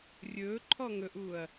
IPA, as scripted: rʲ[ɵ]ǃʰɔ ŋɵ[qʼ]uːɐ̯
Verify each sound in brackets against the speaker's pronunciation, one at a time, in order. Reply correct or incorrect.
incorrect: ɵː, incorrect: ʔ

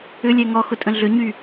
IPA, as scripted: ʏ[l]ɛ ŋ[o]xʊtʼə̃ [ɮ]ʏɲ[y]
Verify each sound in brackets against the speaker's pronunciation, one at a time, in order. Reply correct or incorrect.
incorrect: lʲ, incorrect: ɔ, correct, correct

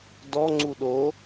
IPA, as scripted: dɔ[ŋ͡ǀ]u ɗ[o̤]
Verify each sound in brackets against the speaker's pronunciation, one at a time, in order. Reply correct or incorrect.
correct, incorrect: o

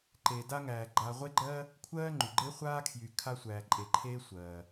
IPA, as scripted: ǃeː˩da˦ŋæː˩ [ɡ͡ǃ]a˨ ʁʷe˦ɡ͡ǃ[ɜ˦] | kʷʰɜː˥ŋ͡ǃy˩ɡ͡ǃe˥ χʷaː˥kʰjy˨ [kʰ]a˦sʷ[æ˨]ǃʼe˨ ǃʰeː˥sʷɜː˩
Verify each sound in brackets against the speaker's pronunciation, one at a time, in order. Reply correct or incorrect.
correct, correct, correct, incorrect: æː˨

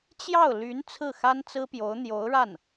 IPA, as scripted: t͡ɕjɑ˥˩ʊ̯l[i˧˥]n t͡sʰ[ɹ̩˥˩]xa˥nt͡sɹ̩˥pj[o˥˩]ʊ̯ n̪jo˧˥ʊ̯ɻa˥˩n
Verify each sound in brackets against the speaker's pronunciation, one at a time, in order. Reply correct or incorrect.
incorrect: y˧˥, correct, incorrect: o˧˥

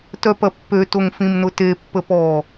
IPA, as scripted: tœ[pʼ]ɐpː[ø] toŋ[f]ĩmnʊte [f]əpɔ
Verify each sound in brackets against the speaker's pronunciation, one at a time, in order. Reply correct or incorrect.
incorrect: p, correct, correct, incorrect: pː

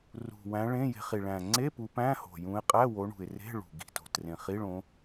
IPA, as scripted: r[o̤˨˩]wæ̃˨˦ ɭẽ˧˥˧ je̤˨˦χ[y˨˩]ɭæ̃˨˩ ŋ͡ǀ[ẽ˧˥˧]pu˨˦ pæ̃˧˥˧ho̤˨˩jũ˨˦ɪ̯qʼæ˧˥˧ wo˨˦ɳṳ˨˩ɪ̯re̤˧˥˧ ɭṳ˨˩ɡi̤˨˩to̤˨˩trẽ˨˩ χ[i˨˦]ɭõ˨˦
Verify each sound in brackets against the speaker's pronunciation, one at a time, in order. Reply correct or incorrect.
incorrect: ṳ˨˩, incorrect: i˨˩, incorrect: e˧˥˧, incorrect: i˧˥˧

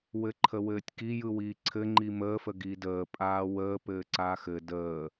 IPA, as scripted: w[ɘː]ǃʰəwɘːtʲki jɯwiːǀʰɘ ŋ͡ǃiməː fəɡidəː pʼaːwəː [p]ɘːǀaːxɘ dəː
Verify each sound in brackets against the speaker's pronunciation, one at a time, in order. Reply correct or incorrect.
incorrect: ɘ, correct

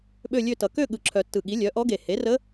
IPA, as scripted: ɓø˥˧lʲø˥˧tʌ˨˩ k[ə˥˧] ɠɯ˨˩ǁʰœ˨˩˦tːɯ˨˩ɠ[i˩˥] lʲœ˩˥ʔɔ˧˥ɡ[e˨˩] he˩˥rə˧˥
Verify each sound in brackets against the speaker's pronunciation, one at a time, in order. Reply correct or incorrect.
incorrect: ø˥˧, correct, correct

